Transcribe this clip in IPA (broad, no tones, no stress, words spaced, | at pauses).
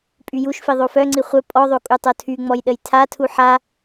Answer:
pʼyjuʃfi ðˤofœŋ͡ǀi χʷœ pʼɔðˤo kʼutˤotʰyŋ͡mɔj ɗəjtʰatʰu ħa